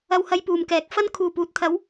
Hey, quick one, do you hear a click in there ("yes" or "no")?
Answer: no